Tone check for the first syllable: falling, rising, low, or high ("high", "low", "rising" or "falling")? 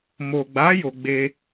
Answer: low